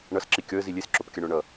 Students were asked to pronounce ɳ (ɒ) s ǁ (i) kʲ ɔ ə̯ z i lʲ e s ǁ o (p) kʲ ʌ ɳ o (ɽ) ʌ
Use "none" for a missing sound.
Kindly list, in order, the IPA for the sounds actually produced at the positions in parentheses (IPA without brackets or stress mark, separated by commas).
ʌ, i, p, ɳ